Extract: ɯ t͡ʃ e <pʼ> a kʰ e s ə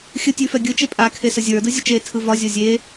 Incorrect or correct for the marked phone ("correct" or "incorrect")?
correct